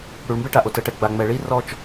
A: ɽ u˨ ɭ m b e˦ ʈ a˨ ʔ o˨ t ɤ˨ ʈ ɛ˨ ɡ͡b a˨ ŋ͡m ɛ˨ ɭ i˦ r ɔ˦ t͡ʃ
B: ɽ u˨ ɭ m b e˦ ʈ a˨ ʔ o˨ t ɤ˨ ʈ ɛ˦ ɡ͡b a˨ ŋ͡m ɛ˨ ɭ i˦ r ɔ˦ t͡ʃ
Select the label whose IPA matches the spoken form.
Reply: A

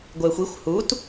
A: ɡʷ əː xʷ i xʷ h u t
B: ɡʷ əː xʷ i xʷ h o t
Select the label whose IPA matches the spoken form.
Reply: A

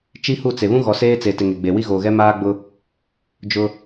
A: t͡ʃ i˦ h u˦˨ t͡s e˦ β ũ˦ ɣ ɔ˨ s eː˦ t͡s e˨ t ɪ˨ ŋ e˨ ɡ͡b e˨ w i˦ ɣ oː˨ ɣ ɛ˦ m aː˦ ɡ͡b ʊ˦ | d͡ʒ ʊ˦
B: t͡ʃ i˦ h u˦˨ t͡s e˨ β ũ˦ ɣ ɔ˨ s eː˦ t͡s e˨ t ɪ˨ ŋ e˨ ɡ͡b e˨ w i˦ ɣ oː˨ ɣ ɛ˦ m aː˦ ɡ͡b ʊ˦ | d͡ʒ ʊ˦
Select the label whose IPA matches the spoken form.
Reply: B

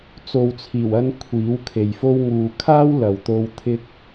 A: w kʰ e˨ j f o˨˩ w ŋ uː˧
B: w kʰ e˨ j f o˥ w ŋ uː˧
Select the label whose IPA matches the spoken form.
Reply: B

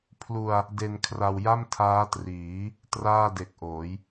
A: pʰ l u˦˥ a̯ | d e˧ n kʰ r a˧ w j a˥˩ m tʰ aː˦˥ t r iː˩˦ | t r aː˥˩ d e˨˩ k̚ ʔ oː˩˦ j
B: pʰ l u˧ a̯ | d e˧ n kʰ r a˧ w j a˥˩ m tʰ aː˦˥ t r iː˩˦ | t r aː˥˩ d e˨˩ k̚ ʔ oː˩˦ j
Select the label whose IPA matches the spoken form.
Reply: B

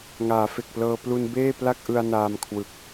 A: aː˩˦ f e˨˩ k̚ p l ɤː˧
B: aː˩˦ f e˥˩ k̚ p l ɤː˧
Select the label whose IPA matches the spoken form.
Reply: A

